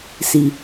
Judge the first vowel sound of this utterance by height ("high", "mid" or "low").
high